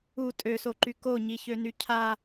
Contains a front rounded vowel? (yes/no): yes